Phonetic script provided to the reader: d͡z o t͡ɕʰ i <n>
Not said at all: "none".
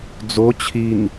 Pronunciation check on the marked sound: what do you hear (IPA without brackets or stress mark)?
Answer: n